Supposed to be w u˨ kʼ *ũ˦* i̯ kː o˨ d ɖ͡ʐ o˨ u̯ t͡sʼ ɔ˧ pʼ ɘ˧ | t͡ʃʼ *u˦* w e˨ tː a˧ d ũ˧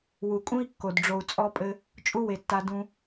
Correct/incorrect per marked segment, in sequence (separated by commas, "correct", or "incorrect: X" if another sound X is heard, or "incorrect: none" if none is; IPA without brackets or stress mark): correct, correct